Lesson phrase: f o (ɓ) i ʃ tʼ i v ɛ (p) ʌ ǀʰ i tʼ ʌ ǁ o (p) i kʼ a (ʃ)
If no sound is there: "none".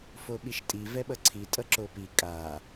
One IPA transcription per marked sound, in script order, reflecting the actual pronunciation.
ɓ, ɓ, p, none

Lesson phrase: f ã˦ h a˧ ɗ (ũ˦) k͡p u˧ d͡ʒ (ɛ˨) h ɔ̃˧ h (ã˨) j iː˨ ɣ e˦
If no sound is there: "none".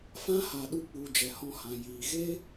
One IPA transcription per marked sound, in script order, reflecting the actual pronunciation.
u˦, ɛ˨, ã˨

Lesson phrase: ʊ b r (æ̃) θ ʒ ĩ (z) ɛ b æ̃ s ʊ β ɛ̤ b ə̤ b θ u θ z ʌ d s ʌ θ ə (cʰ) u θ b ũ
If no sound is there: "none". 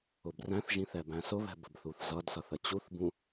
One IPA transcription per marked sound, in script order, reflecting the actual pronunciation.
æ̃, θ, t͡ɕ

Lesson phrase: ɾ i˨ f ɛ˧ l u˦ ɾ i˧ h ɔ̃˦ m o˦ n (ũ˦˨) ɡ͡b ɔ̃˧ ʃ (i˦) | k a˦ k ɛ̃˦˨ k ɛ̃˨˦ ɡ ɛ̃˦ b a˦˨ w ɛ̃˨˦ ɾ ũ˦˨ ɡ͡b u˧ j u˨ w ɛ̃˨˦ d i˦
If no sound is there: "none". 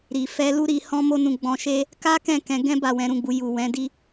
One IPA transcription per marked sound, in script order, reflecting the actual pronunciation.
ũ˦˨, e˦

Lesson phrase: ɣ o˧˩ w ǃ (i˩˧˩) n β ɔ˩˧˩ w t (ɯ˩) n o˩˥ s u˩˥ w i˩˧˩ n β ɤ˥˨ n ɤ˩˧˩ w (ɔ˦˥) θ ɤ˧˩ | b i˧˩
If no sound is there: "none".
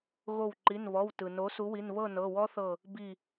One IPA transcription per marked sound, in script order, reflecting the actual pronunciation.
i˩˧˩, ɯ˩, ɔ˦˥

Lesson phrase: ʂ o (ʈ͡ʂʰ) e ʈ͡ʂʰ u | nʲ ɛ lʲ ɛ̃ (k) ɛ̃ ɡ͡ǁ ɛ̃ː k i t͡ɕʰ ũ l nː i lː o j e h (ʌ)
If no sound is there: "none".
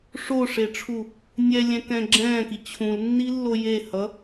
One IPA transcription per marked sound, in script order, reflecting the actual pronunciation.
ʂ, k, ʌ

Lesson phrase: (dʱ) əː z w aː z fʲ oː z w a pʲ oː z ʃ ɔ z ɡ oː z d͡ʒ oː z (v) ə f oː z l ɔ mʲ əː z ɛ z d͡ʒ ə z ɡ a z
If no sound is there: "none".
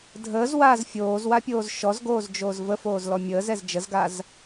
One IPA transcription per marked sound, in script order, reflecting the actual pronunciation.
dʱ, v

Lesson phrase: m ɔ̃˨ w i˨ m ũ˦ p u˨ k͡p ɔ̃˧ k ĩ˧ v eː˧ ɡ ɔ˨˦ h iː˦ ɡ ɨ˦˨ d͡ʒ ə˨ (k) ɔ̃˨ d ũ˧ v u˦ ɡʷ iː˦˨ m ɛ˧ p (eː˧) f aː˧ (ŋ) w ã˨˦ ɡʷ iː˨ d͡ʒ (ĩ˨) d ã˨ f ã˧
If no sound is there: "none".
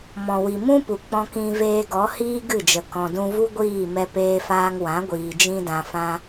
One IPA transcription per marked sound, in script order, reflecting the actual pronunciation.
k, eː˧, ŋ, ĩ˧

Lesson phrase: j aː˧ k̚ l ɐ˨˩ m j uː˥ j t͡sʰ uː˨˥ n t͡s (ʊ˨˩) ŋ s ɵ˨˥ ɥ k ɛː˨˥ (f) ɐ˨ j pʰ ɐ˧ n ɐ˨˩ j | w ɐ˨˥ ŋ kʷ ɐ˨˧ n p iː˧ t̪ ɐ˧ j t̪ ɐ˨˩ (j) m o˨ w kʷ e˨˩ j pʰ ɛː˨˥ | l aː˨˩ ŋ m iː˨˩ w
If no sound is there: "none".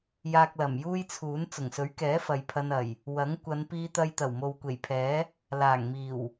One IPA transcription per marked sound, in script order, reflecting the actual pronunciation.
ʊ˨˩, f, w

